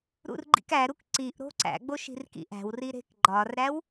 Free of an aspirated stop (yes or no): yes